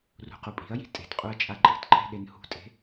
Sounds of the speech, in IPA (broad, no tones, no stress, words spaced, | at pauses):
rṳqupʼi̤ɐ̯ji̤ tʼe̤tqʼuɐ̯ t͡ʃʼaǃʼi̤tǃʰe̤ ɗenhṳtʼe̤